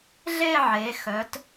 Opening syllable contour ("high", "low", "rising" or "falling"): falling